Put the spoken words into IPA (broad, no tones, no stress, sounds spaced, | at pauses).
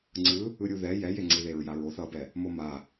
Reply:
ŋ͡ǀ ɯ | ɯ ɾʲ u ð ɛ j ɛ j e ŋ͡ǀ i ð e ɹ j a ɹ o θ ʌ b ɛ | m o m a